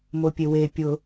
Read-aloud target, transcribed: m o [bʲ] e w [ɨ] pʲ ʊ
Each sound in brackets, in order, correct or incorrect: incorrect, incorrect

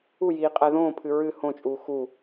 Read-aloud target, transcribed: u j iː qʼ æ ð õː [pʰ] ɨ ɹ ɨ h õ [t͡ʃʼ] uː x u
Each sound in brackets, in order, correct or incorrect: correct, correct

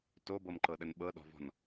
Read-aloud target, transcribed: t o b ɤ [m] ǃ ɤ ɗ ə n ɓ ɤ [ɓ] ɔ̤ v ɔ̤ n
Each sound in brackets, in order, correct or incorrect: correct, incorrect

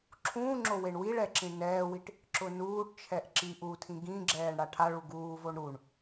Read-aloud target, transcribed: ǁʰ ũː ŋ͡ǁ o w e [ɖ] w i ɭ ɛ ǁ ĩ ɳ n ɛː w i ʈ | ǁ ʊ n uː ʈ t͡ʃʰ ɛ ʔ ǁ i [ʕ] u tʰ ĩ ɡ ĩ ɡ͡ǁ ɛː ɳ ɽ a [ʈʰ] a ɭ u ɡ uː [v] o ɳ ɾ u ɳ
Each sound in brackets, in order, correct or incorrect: incorrect, incorrect, correct, correct

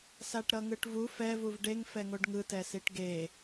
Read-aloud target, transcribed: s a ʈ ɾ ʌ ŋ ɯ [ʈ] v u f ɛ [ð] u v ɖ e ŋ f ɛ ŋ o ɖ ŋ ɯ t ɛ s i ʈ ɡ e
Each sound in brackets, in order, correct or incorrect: correct, incorrect

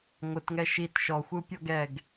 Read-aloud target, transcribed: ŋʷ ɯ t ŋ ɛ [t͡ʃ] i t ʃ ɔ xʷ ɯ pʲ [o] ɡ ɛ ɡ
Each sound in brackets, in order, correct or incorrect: incorrect, incorrect

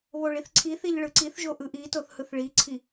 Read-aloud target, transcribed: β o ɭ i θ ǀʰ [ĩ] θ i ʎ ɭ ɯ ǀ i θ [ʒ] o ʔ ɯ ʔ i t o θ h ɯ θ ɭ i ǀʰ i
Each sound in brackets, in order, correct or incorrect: incorrect, correct

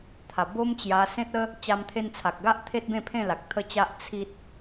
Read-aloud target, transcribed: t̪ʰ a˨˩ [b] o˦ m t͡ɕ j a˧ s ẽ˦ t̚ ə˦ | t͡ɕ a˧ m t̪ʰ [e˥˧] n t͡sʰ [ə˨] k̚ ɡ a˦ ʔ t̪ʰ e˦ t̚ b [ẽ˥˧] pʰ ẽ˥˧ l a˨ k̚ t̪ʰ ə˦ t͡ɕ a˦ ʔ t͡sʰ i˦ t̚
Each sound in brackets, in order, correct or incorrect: correct, incorrect, incorrect, correct

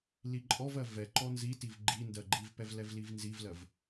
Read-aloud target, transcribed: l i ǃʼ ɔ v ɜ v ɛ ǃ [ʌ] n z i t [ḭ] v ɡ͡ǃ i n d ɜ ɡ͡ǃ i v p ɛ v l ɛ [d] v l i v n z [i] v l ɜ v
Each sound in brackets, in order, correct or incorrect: incorrect, incorrect, incorrect, correct

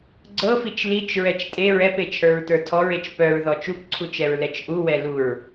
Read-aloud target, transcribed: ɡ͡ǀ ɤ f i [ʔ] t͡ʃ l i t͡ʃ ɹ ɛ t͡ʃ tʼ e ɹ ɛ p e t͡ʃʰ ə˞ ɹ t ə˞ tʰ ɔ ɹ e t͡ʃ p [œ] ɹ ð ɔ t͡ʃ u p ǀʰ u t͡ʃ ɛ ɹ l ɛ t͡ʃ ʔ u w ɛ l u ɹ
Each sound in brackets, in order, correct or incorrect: incorrect, correct

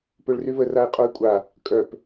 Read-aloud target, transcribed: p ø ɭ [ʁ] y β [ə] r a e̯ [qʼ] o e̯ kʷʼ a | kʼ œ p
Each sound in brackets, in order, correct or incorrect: incorrect, correct, correct

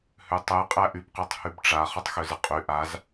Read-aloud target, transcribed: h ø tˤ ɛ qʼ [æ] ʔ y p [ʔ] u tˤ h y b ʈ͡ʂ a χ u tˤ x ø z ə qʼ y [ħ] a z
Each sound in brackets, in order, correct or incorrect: correct, incorrect, incorrect

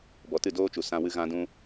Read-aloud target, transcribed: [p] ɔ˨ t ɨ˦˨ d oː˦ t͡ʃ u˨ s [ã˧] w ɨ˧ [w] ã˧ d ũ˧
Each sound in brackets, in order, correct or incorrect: incorrect, correct, incorrect

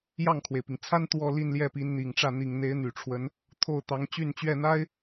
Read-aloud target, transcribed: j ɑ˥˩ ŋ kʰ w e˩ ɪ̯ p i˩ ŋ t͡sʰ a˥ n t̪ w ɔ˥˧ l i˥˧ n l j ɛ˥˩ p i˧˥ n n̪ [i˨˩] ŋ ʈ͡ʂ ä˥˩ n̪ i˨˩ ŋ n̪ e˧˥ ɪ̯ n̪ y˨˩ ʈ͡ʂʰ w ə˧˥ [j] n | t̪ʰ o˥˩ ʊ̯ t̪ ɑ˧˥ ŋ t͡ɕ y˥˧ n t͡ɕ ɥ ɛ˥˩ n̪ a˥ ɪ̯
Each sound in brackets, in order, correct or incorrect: correct, incorrect

